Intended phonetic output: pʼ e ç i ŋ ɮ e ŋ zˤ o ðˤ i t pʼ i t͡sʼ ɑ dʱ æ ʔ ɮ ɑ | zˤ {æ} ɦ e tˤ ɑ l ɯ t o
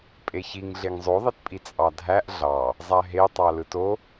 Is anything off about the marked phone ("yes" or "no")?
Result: no